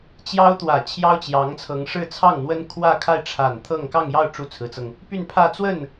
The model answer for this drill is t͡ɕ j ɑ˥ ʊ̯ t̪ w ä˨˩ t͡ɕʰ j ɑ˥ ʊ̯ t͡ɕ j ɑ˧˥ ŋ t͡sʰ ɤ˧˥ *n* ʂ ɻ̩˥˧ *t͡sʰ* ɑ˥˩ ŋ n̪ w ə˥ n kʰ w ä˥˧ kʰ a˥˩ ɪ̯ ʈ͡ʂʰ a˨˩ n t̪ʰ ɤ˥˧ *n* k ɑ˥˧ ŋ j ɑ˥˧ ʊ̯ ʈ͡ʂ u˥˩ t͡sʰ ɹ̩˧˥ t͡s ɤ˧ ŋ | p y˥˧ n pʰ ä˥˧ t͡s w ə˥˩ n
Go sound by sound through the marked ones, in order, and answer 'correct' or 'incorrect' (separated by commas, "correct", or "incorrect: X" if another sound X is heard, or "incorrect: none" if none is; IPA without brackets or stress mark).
incorrect: ŋ, correct, incorrect: ŋ